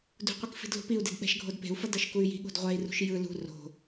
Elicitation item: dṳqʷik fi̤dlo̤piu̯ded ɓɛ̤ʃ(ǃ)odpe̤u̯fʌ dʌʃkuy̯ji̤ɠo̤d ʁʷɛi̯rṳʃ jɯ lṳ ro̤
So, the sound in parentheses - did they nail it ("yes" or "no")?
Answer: no